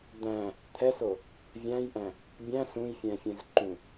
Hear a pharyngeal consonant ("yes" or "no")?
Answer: no